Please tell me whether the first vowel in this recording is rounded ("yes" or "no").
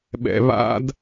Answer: no